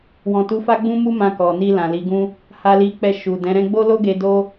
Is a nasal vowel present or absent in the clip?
present